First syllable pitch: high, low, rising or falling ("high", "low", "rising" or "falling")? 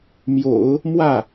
low